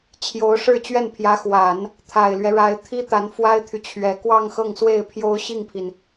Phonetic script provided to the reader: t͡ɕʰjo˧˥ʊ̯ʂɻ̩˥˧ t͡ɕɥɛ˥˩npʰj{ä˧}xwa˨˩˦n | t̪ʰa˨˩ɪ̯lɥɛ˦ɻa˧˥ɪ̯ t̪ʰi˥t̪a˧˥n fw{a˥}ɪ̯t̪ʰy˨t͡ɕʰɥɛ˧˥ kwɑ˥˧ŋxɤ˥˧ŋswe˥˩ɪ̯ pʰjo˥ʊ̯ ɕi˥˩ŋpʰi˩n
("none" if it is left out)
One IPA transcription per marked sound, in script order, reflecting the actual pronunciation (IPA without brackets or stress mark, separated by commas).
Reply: ä˧˥, a˥